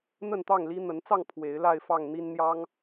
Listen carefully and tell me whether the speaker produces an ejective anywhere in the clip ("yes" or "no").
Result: no